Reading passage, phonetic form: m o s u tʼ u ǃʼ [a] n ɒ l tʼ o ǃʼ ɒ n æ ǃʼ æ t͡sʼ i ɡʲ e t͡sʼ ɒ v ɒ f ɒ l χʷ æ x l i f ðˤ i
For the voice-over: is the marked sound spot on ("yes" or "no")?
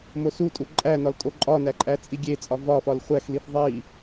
no